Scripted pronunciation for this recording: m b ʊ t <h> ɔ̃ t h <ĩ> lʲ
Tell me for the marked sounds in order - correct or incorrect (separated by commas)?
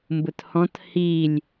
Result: correct, incorrect